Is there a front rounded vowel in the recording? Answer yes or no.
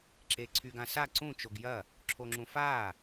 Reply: yes